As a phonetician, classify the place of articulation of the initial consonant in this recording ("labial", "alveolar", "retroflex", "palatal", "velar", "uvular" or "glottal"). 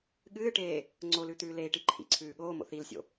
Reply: velar